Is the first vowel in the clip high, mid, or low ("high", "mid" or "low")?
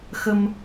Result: mid